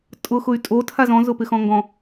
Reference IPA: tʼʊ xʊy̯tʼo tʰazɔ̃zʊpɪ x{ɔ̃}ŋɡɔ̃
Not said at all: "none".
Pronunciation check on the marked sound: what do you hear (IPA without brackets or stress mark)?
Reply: ɔ̃